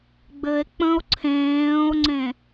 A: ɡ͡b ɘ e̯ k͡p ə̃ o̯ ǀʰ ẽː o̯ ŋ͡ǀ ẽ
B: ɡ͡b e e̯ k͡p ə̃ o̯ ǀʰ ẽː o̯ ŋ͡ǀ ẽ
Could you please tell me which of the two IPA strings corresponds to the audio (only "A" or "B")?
A